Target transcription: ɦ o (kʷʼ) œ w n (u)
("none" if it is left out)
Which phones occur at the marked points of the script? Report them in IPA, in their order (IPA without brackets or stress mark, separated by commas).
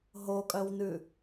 kʼ, ʉ